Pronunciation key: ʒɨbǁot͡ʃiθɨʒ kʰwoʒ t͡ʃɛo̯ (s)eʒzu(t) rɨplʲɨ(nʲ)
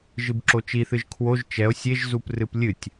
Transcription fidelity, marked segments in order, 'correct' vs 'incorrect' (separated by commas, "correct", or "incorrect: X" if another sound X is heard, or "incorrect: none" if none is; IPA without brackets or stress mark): incorrect: sʲ, incorrect: p, incorrect: tʲ